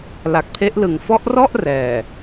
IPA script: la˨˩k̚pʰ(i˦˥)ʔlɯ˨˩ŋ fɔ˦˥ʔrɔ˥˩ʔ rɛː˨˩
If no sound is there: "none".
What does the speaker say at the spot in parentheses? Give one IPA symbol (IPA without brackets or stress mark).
e˦˥